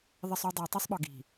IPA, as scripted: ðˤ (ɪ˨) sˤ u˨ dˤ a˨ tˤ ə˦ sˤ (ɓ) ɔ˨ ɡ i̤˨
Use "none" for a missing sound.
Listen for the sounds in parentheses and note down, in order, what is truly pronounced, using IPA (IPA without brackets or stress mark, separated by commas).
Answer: ɪ˨, ɓ